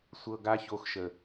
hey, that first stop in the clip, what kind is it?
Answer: plain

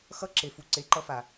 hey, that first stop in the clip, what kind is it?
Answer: click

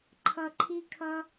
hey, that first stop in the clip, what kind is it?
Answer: click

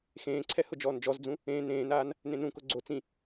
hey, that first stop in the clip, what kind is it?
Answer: click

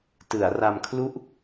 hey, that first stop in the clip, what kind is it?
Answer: plain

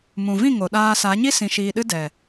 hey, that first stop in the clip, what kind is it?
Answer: implosive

